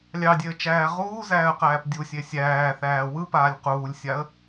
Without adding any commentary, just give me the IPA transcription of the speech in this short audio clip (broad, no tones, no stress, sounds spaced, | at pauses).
lʲ ɑ dʲ e ə̯ t͡ʃ æː ʁ uː z æː ə̯ q æː p dʲ u sʲ e sʲ æː θ æː w ɯ p aː lʲ q uː lʲ sʲ a ə̯